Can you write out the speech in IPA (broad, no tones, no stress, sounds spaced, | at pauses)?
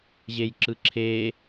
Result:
ʑ e j ǁ ɯ ǁʰ e